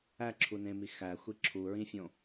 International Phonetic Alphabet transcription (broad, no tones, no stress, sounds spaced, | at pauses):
æ ǁʰ u n ẽ m i x æ xʷ i ǁʰ u ɹ ĩ fʲ õ